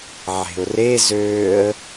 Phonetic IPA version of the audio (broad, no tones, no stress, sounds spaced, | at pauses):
ʕ e̤ ʊ̯ r e z øː ə̯